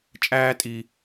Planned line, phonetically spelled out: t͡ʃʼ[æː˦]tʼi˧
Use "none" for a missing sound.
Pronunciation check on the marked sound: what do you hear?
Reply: æː˦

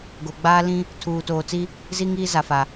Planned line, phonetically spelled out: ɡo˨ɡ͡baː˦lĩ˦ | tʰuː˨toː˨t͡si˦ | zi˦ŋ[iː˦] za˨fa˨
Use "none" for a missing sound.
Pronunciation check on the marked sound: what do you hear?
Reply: iː˦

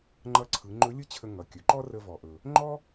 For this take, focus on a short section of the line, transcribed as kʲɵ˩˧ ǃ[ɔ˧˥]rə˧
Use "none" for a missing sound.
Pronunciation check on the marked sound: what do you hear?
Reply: ɔ˥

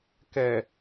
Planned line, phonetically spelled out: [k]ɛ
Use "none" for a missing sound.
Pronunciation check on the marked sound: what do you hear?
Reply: k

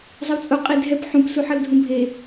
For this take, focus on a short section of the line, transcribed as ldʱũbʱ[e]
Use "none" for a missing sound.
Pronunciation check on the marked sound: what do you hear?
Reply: e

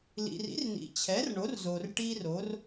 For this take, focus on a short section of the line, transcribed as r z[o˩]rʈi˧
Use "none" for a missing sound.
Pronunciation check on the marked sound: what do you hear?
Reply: o˩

